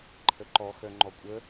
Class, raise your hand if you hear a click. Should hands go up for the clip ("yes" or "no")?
yes